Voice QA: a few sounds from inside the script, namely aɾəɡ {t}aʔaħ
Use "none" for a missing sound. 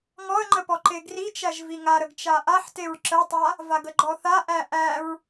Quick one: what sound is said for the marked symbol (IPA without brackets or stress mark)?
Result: t͡ʃ